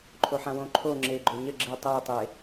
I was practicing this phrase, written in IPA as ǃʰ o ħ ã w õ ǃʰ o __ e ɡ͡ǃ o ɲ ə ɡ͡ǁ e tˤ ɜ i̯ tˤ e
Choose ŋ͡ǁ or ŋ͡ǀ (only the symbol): ŋ͡ǁ